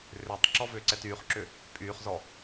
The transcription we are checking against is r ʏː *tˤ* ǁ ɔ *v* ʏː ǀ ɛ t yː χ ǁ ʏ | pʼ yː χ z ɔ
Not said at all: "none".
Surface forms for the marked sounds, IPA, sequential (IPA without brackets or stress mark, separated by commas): tˤ, v